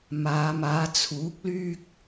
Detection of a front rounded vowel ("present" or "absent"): present